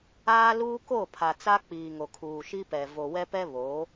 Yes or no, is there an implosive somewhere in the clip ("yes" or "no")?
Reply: no